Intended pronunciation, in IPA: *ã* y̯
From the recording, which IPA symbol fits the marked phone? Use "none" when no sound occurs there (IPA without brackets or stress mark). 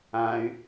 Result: ã